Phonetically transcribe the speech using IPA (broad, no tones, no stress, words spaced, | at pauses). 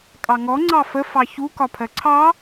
kʼɑŋɔ ŋ͡ǀɑfə fɑçu kɒpʰɜǀʰɑ